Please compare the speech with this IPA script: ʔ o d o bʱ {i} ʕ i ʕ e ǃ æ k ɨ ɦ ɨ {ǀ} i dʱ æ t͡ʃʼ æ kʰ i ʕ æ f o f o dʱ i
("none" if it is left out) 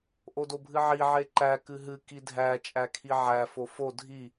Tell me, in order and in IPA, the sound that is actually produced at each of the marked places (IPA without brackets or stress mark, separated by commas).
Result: ɨ, k